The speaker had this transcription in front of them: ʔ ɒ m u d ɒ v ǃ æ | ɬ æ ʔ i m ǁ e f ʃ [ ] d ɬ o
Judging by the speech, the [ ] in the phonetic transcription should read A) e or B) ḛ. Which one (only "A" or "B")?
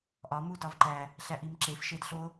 A